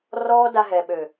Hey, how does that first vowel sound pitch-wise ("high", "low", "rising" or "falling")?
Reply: high